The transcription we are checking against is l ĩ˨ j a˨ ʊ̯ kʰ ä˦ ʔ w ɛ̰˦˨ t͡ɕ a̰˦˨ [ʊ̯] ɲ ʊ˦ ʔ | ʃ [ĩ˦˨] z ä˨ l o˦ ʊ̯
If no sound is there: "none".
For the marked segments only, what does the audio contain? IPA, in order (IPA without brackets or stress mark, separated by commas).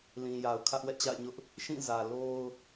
ɪ̯, ĩ˦˨